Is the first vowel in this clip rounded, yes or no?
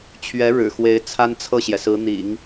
no